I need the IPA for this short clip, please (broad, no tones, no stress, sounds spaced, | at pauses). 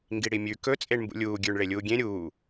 ŋ ɡ i ɽ i mʲ ʉ k ɵ t͡sʼ e ɳ m b ṵ lʲ uː ɡʲ ʉː ɳ ɭ e lʲ uː ɡʲ ẽ ɾʲ uː